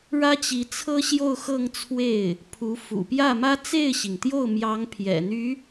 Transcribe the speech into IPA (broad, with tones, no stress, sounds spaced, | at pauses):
ɻ ä˥ t͡ɕ i˧˥ t͡sʰ ɤ˥ ɕ j o˥˧ ʊ̯ x ɤ˥˧ ŋ t͡sʰ w e˥˩ ɪ̯ | pʰ u˧˥ f ṵ˨˩ p j ä˥˩ m ä˥ t͡s e˥˩ ɪ̯ ɕ i˩ ŋ t̪ j o˥˩ ʊ̯ m j ɑ˧˥ ŋ pʰ j ɛ̰˨˩ n̪ y˧˥